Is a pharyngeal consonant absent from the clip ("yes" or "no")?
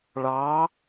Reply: yes